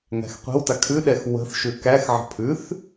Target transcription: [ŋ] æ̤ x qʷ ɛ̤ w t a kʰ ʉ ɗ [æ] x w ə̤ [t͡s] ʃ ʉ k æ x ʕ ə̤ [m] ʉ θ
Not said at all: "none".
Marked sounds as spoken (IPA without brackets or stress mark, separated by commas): ŋ, ɛ, θ, pʰ